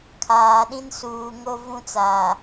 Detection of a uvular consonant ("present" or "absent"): absent